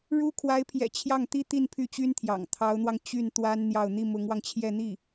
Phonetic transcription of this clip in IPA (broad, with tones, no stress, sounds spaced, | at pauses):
ɻ u˥ kʰ w a˧˥ ɪ̯ pʰ j ɛ̰˨˩ t͡ɕʰ j ɑ˥˩ ŋ t̪ i˥ t̪ i˥˧ n pʰ y˥˩ t͡ɕ y˥ n t̪ʰ j ɑ̰˨˩ ŋ t̪ʰ ɑ˧˥ ʊ̯ n̪ w ɑ˧ ŋ t͡ɕ y˥˩ n t̪ w a˥ n n̪ j ɑ˥˧ ʊ̯ n̪ i˥˩ m ʊ˧˥ ŋ w ɑ˧ ŋ t͡ɕʰ j ɛ˥˧ n̪ i˥˩